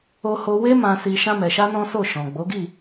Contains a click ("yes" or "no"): no